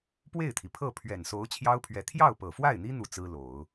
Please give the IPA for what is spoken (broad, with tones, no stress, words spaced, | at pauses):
pwe˥˩ɪ̯t̪ʰi˩pʰɤ˥˩ pʰɥɛ˨˩nso˧˥ʊ̯ t͡ɕʰjɑ˥ʊ̯pʰɥɛ˧˥ t̪ʰjɑ˥˩ʊ̯pɤ˨˩fwa˥˩ɪ̯n̪i˥ n̪u˥˩t͡sɹ̩˥lo˨˩˦ʊ̯